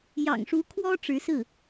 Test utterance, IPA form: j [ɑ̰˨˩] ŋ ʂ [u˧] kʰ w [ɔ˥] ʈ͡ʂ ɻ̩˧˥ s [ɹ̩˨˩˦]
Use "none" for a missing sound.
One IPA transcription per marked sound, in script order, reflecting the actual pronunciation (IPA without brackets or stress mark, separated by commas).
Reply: ɑ̰˨˩, u˧˥, ɔ˥, ɹ̩˥˩